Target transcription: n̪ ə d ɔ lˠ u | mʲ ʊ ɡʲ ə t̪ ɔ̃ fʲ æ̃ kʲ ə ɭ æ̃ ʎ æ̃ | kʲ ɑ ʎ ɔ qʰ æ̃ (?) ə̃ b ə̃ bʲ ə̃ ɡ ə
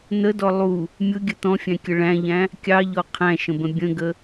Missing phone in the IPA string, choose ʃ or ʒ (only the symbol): ʃ